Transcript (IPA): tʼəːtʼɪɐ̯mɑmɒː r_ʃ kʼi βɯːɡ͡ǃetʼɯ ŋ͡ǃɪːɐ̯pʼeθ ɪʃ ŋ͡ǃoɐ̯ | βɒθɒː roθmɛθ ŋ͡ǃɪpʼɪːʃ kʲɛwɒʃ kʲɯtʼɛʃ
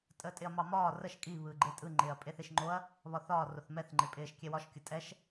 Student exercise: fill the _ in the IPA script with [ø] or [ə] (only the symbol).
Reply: ə